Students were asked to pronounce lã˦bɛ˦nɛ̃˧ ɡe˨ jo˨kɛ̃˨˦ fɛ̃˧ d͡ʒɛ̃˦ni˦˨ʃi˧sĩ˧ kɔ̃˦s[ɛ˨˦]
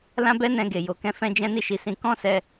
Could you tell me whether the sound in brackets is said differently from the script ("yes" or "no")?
yes